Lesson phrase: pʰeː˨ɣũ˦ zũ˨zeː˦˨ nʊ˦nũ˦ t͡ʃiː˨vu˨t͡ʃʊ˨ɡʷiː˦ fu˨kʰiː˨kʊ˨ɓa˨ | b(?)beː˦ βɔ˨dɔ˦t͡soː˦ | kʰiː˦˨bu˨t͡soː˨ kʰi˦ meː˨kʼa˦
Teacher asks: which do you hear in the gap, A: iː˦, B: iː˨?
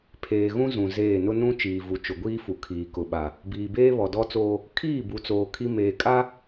B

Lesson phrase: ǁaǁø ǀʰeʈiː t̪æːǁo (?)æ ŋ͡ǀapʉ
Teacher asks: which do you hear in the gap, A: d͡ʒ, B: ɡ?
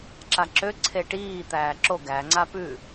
B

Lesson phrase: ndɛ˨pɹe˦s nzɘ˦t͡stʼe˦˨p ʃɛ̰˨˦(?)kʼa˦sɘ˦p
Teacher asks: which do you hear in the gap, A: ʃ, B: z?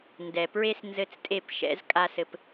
B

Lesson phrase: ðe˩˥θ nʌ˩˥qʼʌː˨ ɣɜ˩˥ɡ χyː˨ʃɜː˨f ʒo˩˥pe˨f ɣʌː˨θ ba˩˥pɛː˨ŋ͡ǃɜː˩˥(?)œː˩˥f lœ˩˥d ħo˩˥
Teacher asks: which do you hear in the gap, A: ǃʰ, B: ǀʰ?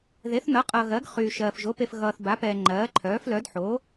A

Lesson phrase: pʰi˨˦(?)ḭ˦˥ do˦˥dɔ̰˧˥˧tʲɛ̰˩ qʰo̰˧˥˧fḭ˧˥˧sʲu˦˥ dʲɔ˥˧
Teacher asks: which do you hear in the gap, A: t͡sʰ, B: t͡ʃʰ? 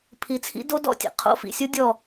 A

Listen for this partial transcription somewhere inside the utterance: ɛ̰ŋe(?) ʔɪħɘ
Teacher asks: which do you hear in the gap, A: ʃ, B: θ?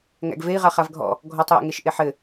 A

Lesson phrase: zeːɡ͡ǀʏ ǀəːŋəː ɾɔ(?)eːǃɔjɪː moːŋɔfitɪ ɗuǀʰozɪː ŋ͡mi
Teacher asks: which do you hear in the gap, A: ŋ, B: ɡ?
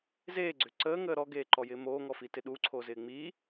B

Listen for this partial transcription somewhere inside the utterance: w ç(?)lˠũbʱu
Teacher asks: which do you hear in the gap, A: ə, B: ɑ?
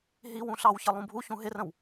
A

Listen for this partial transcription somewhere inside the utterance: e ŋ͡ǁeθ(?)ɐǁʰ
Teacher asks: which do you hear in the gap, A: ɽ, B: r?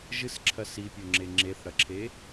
A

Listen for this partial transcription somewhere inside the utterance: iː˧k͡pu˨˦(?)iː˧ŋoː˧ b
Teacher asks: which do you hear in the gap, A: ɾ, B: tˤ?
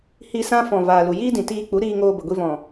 A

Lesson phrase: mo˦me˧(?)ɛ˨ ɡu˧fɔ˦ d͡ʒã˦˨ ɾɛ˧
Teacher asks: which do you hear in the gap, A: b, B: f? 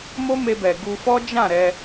A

